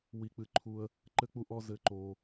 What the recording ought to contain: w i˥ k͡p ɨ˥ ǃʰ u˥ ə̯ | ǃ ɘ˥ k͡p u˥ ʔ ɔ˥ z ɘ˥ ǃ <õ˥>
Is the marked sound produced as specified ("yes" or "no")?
no